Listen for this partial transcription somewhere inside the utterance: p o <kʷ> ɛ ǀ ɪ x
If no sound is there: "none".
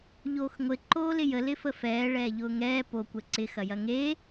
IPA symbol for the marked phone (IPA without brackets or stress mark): kʷ